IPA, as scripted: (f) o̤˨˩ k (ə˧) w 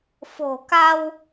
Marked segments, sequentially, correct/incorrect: correct, incorrect

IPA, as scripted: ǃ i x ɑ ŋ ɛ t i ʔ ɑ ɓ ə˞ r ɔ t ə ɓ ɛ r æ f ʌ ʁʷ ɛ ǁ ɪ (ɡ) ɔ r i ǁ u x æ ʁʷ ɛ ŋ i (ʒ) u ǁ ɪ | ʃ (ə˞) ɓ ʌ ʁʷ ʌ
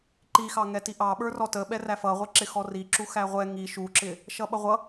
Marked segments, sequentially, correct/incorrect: incorrect, incorrect, incorrect

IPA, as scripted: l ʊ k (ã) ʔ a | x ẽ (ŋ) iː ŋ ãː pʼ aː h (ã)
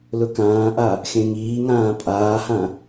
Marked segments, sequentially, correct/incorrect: incorrect, correct, correct

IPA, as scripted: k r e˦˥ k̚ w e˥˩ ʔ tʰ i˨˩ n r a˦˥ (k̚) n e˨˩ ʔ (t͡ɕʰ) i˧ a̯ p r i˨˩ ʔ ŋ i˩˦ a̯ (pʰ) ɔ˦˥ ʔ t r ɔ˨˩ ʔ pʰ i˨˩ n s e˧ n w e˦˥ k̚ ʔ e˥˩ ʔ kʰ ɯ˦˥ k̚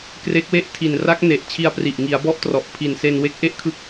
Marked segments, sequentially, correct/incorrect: correct, correct, incorrect

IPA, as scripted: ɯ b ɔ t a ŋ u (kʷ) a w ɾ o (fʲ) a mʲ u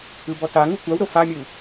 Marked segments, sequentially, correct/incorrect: correct, incorrect

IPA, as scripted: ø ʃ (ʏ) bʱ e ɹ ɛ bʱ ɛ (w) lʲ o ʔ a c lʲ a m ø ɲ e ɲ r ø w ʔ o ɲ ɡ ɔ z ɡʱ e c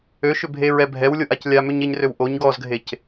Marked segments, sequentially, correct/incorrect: correct, correct

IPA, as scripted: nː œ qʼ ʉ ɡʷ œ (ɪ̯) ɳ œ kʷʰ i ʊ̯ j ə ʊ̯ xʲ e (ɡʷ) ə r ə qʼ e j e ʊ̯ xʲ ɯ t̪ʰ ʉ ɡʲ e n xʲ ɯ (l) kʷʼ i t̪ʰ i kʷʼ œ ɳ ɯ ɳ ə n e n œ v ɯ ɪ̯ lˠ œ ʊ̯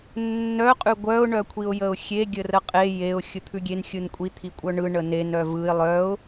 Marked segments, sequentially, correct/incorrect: incorrect, incorrect, incorrect

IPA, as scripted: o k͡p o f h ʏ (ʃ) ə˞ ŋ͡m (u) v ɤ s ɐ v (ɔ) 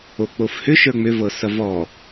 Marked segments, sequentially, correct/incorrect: correct, incorrect, correct

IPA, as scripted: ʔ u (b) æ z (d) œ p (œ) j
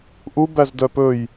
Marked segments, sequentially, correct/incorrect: correct, correct, incorrect

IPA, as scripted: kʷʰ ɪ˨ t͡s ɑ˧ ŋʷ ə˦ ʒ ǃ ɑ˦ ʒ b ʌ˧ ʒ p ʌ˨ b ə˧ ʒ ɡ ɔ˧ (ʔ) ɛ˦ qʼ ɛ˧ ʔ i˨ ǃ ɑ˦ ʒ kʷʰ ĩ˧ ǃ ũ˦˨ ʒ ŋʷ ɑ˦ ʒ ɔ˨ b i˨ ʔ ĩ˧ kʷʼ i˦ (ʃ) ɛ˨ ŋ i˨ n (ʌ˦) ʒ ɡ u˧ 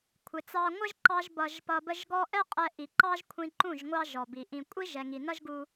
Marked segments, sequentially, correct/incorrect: correct, incorrect, correct

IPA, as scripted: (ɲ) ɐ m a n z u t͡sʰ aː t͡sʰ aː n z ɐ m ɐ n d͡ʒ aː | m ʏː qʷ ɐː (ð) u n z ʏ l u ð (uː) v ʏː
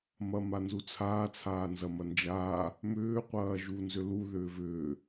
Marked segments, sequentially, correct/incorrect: incorrect, incorrect, incorrect

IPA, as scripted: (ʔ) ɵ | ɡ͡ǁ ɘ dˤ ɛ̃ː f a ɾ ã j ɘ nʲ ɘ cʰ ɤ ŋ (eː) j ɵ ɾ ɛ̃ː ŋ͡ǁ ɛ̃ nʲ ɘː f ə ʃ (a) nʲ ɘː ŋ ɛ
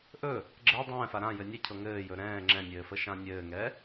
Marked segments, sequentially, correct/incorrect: correct, incorrect, incorrect

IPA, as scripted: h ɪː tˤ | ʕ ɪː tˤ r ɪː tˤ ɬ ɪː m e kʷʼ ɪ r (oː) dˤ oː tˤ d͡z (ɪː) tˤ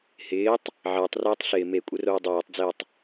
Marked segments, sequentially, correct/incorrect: correct, correct

